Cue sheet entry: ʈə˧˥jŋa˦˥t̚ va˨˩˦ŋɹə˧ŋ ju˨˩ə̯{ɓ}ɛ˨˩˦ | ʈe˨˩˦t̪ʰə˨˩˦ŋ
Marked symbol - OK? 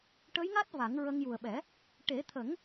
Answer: yes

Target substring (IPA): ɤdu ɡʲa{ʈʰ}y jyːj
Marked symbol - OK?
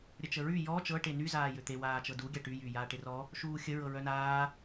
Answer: no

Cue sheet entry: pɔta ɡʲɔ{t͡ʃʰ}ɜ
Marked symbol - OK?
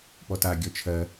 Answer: yes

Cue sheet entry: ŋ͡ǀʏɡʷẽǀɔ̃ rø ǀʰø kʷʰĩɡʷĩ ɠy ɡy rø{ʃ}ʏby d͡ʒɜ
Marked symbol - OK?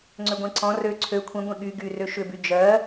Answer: yes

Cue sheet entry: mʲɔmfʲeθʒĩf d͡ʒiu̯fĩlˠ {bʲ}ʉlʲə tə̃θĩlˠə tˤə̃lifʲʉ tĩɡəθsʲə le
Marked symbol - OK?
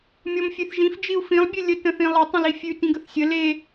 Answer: yes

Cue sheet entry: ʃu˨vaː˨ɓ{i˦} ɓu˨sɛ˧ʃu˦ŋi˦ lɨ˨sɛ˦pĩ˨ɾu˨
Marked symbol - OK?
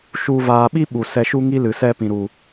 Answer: yes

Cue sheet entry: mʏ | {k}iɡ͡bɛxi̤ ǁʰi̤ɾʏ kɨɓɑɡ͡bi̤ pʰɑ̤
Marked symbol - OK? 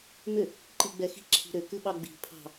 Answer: no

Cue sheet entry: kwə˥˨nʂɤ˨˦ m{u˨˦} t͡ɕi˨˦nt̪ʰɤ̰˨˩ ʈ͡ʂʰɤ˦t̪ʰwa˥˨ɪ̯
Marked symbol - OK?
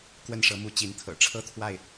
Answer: yes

